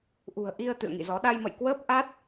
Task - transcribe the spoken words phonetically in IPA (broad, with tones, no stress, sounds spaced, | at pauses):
ʔ ṳ˨˩ ə̯ ʔ i˧ ə̯ t̪ ɨ̰˧˨ ə̯ ŋ ḭ˧˨ z ɔ˨˦ ɗ a˧ j m ə̰˧˨ j k w əː˦˥ p̚ ʔ a˦˥ t̚